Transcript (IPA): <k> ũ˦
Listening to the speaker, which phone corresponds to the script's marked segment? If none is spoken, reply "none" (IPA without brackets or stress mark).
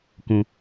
k